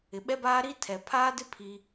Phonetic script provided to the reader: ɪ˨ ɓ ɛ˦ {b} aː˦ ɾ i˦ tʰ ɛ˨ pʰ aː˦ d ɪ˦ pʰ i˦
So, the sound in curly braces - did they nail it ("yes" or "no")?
yes